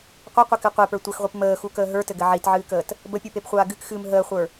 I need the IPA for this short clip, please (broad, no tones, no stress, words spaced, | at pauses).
qʷɘqʷɘkɨ qʷepə˞ tʷʌxʁʷip məːxukəː ɦə˞tɘɡɘ ʕitʕɨːkəːt | bəpʲupepχʷaː ɡɨkxɨːm ɦəːχʷə˞